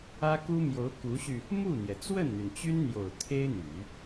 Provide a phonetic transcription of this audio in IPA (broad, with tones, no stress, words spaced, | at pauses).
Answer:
ä˥ku˥mjo˧˥ʊ̯ ku˧˥ɕy˧ | mu˥˩n̪jɛ˩ t͡swə˥˩nn̪y˩nt͡ɕy˥nn̪jo˨˩ʊ̯ t̪ʰe˥ɪ̯n̪y˨˩˦